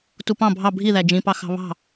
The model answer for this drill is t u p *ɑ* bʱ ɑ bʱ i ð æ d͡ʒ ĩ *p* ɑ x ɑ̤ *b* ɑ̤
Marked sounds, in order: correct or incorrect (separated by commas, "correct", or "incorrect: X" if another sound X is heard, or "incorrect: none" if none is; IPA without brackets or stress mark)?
incorrect: ɑ̃, correct, incorrect: β